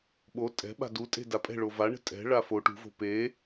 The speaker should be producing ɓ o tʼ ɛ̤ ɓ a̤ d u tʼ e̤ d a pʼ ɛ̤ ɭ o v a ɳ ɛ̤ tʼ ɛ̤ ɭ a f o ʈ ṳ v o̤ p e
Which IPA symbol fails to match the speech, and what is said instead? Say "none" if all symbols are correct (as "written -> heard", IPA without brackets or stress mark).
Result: none